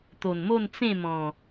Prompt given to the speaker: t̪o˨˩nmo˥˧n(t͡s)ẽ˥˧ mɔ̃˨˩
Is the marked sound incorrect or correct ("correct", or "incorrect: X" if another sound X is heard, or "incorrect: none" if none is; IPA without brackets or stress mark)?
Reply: correct